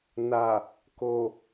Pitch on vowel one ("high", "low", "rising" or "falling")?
low